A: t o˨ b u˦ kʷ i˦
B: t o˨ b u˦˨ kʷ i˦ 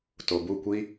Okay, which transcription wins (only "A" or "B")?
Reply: B